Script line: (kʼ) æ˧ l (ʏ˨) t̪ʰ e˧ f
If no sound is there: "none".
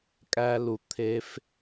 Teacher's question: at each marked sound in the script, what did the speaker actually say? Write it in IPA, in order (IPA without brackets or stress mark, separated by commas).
kʼ, u˨